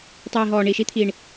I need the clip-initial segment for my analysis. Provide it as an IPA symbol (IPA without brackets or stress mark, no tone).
tˤ